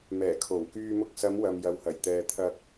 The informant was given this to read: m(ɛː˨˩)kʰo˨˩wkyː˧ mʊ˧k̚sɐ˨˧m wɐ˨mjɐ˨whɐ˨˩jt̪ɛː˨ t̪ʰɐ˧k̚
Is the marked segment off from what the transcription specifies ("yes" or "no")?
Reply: no